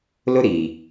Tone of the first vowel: high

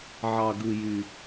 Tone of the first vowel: low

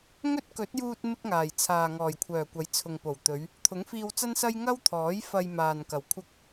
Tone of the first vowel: high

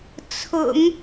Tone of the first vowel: low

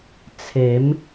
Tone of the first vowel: rising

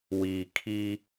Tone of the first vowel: low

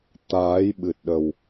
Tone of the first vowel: rising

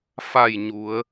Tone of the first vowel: falling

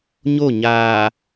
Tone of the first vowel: falling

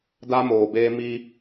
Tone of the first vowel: high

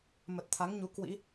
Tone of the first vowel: low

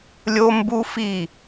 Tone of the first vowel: high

